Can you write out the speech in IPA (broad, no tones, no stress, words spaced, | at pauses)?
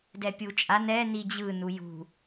dɛpʲut͡ʃʼa nɛ nid͡ʑɯ nujṳ